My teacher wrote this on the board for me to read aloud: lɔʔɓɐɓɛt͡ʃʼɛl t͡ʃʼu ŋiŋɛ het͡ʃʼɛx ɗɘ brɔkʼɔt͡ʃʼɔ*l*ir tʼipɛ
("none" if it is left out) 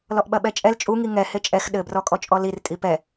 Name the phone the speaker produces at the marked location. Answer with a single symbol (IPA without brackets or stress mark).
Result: l